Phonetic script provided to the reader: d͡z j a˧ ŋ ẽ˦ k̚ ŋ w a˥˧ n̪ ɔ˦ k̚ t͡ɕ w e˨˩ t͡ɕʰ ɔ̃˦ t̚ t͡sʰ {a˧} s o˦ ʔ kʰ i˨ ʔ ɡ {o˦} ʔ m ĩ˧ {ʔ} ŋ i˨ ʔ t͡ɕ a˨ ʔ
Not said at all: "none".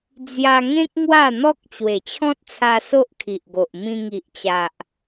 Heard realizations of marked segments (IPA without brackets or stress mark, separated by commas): a˧, o˨, none